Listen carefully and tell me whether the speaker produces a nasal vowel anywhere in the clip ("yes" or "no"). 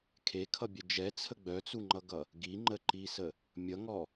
no